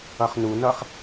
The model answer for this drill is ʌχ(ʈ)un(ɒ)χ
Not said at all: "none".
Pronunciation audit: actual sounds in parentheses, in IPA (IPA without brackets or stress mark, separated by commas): n, ʌ